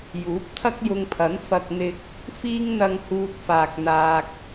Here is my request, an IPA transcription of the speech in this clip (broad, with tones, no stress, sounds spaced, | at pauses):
j uː˨˥ p̚ t̪ʰ ɐ˥ k̚ j ʊ˧ ŋ pʰ ɐ˨˥ n f ɐ˧ k̚ n̪ ɪ˧ k̚ | f iː˥ ŋ n̪ ɐ˧ ŋ h uː˧ t̚ f aː˧ k̚ n̪ aː˧ k̚